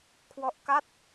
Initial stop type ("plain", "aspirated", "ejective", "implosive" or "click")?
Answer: aspirated